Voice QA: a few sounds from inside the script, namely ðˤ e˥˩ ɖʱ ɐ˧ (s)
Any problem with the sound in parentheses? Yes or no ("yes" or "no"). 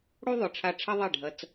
yes